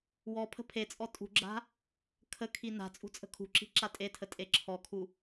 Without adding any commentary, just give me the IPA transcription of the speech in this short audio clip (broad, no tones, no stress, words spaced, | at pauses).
wɔpʰə̤ pʰet͡sʼɔ tʼṳɡ͡ǁa̤ | kʰəkʰi na̤ t͡sʼṳt͡sʼə̤kʰṳǁi̤ ǁatʼetʰə tʼeǁʰɔkʰu